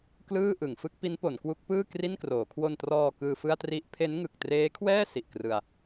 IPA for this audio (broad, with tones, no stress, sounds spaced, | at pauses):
k l ɯː˥˩ ʔ ɯ˩˦ ŋ f ɯ˦˥ k̚ p i˦˥ n p o˩˦ n k w u˦˥ k̚ p ɯː˥˩ k r i˥˩ n k r oː˩˦ kʰ w o˧ n t r ɔː˧ k ɯː˧ f ɯ˥˩ a̯ t r i˦˥ ʔ pʰ e˦˥ n ŋ ɯ˨˩ k̚ t r eː˦˥ kʰ w ɛː˥˩ s i˨˩ ʔ k r ɯ˧ a̯